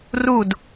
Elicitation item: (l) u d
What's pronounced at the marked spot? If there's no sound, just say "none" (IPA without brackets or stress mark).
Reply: r